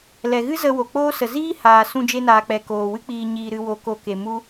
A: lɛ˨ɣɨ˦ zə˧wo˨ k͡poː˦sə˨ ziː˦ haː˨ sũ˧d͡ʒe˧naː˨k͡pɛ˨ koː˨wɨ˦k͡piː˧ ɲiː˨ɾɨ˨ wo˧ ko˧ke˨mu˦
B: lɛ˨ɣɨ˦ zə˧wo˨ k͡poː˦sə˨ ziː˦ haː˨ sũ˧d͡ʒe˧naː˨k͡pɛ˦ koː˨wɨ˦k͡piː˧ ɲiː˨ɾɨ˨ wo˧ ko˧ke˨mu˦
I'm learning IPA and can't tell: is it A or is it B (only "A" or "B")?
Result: A